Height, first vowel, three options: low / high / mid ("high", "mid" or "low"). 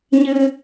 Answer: high